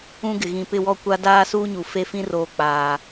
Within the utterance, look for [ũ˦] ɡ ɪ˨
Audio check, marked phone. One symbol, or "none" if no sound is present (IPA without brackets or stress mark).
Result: ũ˦